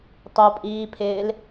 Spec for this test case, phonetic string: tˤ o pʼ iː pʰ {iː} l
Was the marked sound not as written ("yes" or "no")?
yes